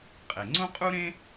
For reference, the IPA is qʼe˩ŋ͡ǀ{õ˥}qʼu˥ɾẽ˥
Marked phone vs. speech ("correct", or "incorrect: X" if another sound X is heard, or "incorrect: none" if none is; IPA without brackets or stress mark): correct